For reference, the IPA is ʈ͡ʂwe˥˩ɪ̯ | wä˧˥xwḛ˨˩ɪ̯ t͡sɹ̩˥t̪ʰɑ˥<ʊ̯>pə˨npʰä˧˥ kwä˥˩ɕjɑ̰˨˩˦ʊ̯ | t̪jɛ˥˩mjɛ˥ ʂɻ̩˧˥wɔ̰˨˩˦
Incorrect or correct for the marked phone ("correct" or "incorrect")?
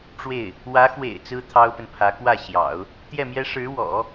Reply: correct